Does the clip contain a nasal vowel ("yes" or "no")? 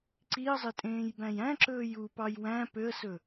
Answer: yes